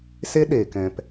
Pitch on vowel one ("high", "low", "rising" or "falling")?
high